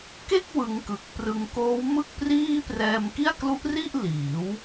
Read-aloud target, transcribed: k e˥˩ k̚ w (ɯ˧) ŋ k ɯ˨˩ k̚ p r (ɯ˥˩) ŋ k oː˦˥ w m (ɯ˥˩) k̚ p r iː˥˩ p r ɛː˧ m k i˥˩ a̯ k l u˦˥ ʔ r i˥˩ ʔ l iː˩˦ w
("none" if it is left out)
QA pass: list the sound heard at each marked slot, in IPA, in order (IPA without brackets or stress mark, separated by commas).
ɯ˧, ɯ˧, ɯ˥˩